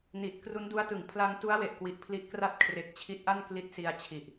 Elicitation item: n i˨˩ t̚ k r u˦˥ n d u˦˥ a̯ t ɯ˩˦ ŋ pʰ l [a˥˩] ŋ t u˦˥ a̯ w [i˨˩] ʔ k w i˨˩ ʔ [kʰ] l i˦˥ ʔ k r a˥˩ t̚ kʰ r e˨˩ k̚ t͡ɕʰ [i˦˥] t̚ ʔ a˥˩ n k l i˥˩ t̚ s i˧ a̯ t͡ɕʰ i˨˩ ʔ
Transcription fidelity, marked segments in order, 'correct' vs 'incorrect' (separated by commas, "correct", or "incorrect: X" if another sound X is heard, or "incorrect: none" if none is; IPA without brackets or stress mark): incorrect: a˧, incorrect: e˨˩, incorrect: pʰ, correct